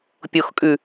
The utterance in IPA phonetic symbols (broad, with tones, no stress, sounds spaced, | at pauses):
pʲ o˨ x kʼ ʉ˨